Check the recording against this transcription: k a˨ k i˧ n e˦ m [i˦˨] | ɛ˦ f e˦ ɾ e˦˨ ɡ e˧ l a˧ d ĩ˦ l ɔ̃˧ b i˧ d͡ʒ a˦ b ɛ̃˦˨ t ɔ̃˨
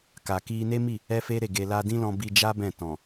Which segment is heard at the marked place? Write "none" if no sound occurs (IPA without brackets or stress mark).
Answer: i˦˨